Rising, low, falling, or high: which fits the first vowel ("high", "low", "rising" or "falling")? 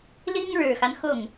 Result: high